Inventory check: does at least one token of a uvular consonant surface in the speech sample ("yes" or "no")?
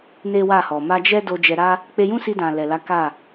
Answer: no